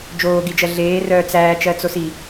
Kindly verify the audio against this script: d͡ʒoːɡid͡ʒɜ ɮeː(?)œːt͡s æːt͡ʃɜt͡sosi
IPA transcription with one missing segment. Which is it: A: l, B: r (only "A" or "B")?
B